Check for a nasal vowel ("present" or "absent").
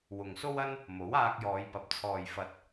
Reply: absent